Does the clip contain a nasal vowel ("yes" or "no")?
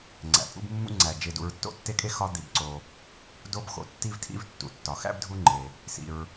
no